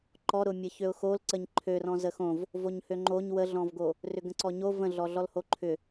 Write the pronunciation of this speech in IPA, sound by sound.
ǃ ɔ ɾ ʊ mʲ ə ç ø ʊ̯ x o l ǀ ə ɲ ǃʰ ø r ɔ̃ z ə x õ v | v o ɲ h ø ŋ͡ǃ o ɲ w ə ɮ ɔ̃ v ɡ o | r ʏ ɡ ə̃ ǀ ɔ ɲ o v ə̃ ɮ ɔ ɮ ɔ l h o ǃʰ ʏ

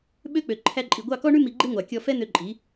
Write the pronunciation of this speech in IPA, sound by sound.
ɓ ø˦ k͡p ø˨ ǃʰ æ˧ ǃʼ i˨ ɡʷ ɑ˦˨ k ɔ˦ ɳ ʉ˦ m i˧ ɡ͡ǃ e˦ ŋʷ ɑ˨ kʲ ɔ˧ f ɛ˦ n̪ ø˧ ǃʼ i˨˦

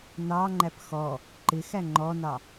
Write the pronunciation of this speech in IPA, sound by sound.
n ɑ ŋ͡ǃ æ p x ɔ | ǃ ɪ x æ ŋ͡ǃ ɔ n ɑ

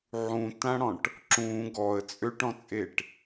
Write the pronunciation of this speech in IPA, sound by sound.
ʕ ũ t ã ɽ ɔ̃ ʈ | ǁ ũ ɡ ɔ ə̯ t͡sʼ ø ʈ ɔ̃ t͡sʼ e ʈ

